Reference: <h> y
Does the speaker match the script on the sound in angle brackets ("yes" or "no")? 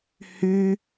yes